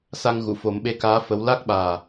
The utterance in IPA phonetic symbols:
sa˧ŋ ɣu˨˩˨fo˨˩˦mɓe˧kaː˧˥ fə˧˥w la˦˥k̚ɓaː˨˩

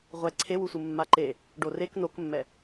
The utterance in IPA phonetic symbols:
ʁʷɛ ǀʰewusʷɯ mːaǃe | ɖorek nokmːɛ

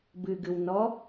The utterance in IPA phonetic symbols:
bɨɡɨwnɔ

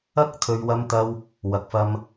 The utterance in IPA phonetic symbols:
ɐ˥k̚ t̪ʰɵ˨ɥwɐ˧mt̪ɐ˧w | wɐ˨k̚fɐ˧m

